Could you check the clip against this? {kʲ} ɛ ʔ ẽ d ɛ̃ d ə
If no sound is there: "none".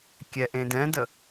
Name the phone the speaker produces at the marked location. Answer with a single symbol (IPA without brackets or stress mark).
kʲ